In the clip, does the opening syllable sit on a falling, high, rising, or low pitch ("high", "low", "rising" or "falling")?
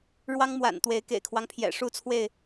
high